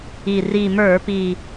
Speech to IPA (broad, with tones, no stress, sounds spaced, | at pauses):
i˨˩ r i˨˩ m ə˞˧˩˧ p i˨˩